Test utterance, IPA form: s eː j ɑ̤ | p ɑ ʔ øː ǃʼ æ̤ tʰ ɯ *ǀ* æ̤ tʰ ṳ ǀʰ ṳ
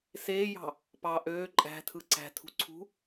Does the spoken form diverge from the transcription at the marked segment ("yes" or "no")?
no